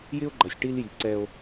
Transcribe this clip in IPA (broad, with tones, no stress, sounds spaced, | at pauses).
j ɪ˥ o̯ ɡ͡ǃ ʌ˨ sʲ ʈ i˦ l j i˨ ǀ ɛ˦ o̯